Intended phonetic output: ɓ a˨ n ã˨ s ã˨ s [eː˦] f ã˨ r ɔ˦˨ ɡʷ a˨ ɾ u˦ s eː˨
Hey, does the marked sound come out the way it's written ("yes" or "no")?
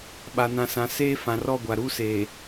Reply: yes